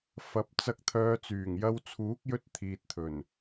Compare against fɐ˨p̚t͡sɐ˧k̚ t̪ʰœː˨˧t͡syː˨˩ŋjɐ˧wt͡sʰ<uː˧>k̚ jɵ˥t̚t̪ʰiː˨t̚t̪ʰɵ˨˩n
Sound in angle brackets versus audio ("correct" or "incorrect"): incorrect